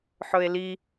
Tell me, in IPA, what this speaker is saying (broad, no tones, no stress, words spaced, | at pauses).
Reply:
ħɵe̯li